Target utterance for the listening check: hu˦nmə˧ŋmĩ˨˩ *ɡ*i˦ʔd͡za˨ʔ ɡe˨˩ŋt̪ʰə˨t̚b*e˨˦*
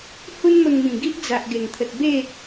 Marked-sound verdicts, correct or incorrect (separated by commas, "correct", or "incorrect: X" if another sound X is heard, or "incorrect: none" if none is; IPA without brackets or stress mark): correct, incorrect: e˥˧